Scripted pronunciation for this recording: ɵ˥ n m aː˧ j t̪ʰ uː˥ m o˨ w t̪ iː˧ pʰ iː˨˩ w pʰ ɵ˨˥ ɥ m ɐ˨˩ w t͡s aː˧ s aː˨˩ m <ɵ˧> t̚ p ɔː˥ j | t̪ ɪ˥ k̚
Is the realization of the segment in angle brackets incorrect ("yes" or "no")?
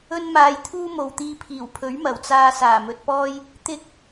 no